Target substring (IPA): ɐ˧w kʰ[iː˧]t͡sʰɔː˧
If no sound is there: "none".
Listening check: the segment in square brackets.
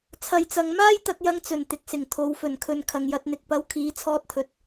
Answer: iː˨˧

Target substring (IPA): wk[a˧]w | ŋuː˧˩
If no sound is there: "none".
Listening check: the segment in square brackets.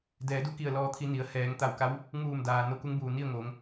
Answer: a˧˥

